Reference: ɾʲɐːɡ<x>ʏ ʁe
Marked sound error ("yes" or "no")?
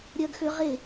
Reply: no